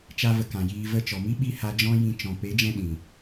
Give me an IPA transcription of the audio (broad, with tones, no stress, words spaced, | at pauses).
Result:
t͡ʃa˦və˧kã˨jiː˧ və˧t͡ʃɔ˨mi˦ ɓi˦ha˧d͡ʒɔ̃˦ jĩ˧ t͡ʃɔ̃˨ pe˨˦d͡ʒɛ̃˧ ɗĩ˨